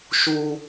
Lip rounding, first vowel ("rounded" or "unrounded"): rounded